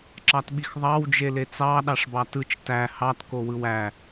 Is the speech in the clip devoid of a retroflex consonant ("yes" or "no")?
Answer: no